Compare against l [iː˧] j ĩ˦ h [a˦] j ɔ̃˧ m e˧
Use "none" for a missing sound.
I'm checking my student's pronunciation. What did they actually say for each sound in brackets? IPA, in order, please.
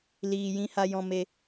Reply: iː˧, a˦

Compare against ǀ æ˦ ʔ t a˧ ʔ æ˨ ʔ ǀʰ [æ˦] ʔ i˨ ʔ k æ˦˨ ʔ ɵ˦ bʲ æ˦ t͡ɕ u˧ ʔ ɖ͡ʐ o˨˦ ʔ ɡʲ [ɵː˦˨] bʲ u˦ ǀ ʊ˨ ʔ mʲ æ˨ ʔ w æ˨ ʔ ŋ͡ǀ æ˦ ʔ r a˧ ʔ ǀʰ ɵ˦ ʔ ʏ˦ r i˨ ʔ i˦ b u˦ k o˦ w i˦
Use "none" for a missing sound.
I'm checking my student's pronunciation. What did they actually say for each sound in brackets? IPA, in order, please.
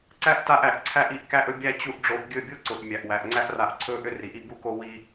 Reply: æ˧, ɵ˦˨

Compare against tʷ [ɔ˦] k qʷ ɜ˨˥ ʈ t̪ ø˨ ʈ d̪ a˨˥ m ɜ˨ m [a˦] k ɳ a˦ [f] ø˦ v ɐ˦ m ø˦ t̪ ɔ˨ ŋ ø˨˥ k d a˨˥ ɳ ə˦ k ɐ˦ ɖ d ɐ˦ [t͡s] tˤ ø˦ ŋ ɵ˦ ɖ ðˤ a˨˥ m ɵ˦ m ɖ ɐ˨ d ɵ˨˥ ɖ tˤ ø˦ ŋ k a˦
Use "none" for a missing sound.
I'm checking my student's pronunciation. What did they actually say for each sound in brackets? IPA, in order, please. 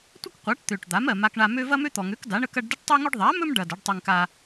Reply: ə˦, a˦, m, ʈ

